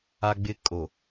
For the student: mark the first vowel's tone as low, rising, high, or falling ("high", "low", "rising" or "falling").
high